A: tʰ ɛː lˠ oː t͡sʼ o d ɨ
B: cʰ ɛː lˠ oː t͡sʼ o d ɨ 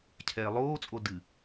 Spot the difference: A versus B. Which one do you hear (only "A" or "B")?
B